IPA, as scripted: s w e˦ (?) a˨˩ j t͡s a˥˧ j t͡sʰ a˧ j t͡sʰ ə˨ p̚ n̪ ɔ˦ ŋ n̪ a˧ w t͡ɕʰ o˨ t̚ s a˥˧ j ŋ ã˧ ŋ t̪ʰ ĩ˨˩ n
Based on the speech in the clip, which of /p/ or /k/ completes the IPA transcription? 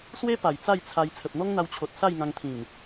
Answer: p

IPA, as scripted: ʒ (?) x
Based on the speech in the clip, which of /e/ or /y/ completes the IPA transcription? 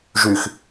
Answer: y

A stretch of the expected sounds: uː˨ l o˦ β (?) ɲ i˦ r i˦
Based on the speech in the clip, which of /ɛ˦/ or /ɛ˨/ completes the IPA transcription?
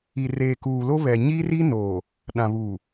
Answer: ɛ˨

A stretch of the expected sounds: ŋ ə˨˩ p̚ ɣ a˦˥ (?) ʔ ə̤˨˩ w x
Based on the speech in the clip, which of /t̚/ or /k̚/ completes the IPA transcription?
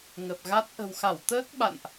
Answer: t̚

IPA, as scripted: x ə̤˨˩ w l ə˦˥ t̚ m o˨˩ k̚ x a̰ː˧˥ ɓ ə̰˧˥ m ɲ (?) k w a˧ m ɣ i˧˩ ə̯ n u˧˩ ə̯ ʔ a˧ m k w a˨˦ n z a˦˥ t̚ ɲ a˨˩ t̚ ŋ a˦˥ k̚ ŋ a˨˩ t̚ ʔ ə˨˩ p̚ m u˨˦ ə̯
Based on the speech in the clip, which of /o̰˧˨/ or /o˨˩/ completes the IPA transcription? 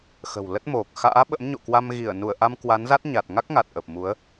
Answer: o̰˧˨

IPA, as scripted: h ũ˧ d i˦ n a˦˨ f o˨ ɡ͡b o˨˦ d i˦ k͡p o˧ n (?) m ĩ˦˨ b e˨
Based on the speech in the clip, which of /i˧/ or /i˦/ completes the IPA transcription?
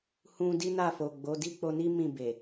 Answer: i˦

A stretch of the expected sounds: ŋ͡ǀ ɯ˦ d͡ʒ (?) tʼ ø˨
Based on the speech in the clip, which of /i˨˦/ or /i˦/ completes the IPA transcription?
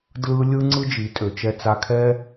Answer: i˨˦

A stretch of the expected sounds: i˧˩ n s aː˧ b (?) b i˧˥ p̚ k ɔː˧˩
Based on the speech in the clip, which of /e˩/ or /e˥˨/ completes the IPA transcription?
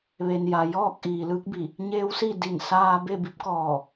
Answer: e˥˨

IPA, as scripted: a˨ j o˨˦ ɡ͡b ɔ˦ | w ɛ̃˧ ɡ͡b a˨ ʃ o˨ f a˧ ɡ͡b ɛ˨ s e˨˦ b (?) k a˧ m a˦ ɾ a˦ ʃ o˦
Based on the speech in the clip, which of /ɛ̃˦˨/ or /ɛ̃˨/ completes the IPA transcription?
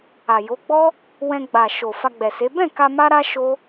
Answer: ɛ̃˦˨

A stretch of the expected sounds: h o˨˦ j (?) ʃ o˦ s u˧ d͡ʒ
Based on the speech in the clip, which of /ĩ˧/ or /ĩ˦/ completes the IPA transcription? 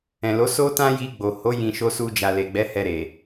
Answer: ĩ˧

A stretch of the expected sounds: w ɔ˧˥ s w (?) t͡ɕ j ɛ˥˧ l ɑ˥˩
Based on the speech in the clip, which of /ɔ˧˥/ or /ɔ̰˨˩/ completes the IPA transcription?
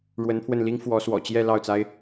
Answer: ɔ̰˨˩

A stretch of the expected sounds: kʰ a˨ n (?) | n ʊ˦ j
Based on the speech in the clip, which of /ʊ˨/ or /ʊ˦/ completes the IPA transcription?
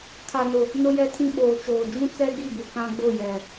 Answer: ʊ˨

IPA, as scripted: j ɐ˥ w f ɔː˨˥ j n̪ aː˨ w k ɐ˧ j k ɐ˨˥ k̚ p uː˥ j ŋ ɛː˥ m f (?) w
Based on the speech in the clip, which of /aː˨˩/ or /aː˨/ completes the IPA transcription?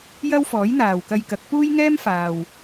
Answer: aː˨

